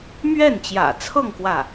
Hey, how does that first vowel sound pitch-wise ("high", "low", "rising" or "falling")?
falling